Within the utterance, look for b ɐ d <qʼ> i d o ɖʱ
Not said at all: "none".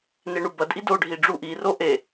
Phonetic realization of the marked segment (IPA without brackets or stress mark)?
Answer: ʔ